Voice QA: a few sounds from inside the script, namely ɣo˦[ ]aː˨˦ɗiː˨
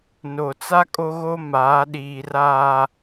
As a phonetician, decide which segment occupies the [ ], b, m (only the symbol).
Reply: m